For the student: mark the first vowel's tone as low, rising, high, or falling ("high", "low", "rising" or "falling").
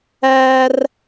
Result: high